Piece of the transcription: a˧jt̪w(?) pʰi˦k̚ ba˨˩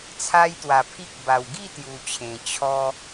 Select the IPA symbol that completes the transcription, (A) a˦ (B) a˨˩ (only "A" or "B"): B